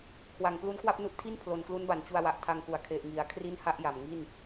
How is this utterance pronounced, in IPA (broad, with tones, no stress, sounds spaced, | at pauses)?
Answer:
kʰ w a˩˦ ŋ p l u˦˥ n k w a˥˩ p̚ n u˥˩ ʔ tʰ i˥˩ n pʰ l o˨˩ n k l u˦˥ n b a˩˦ n t͡ɕ u˧ a̯ w a˨˩ ʔ tʰ a˧ ŋ k u˩˦ a̯ kʰ e˨˩ ʔ ŋ i˩˦ a̯ kʰ r i˥˩ n h a˥˩ ʔ j a˨˩ m ŋ i˥˩ n